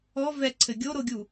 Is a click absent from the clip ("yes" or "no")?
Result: no